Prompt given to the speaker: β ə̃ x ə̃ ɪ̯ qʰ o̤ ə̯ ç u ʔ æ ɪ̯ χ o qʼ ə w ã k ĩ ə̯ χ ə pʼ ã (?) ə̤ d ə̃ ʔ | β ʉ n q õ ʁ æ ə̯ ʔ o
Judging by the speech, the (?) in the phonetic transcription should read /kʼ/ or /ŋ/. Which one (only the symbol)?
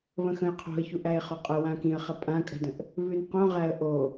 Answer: kʼ